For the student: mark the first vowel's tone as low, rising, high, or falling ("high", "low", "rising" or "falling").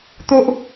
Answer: high